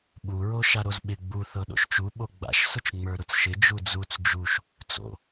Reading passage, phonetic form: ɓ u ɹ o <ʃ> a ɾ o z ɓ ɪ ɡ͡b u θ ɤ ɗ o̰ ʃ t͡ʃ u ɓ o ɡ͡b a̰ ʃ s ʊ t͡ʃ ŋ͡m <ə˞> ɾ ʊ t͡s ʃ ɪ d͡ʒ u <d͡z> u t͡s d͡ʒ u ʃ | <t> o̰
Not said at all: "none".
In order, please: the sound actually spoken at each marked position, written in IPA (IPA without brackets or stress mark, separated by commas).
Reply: ʃ, ə˞, d͡z, t͡s